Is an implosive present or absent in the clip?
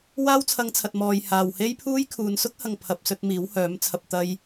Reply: absent